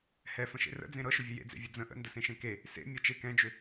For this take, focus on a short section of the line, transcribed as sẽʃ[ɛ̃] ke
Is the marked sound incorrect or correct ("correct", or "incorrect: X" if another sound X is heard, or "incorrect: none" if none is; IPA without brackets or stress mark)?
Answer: incorrect: ẽ